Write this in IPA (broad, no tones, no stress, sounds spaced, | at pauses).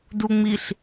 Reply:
d u ŋ͡m i ɬ